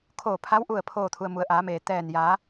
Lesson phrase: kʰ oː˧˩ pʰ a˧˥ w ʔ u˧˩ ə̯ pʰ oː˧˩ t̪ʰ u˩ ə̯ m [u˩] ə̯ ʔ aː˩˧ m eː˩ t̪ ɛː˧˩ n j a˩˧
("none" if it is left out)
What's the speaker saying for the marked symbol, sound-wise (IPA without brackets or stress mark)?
u˩˧